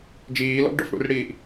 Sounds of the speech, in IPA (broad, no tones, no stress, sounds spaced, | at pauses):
d͡ʒ iː l ɔ̰ ɡ ɖ ɔ̰ f ɽ ṵ r ɽ iː ʔ